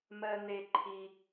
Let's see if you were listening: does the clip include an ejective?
no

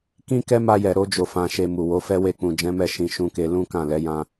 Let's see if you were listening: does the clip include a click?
no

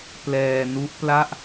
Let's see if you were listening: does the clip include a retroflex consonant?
no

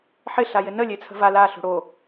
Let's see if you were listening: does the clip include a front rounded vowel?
no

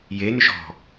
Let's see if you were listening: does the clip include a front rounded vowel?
yes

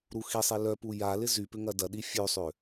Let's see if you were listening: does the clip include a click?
no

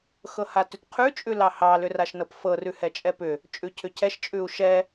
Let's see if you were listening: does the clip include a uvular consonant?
yes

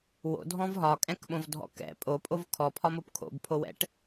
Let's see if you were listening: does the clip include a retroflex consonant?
yes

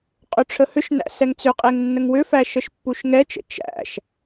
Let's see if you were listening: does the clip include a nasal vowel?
no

